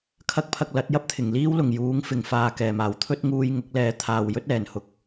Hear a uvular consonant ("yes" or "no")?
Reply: no